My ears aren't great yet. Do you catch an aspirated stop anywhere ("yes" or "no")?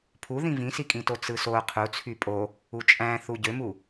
yes